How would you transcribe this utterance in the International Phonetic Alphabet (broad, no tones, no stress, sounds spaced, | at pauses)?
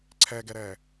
ǀʰ ɛː ɡ ɛ ɾ ɛː